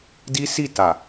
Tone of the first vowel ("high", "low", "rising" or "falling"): high